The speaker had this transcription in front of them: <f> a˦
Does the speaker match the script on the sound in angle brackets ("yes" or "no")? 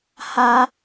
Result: no